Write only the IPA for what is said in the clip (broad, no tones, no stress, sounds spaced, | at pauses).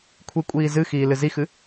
kʷʰ i kʷʼ iː z ɨ x iː l ɨ z i x ɨ